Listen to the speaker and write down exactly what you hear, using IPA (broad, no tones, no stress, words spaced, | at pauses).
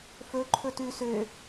fɵ ǃʰɵtʉ sø